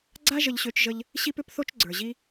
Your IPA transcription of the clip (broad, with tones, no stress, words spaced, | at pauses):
ɡ͡ǀa˦ ʒə˧ʎɕø˧t͡ʃʒə˧ʎ | ɕi˦pʏ˦pθo˦t͡ʃ ɡ͡ǀə˞˨ʑi˦